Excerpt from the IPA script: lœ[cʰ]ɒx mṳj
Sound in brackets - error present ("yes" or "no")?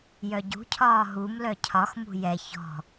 no